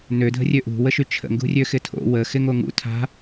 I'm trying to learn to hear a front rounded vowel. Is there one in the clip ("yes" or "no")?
yes